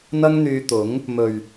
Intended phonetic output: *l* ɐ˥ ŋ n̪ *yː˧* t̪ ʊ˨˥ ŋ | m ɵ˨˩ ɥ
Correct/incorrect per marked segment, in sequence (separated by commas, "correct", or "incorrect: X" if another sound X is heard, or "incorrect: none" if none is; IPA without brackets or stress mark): incorrect: n̪, correct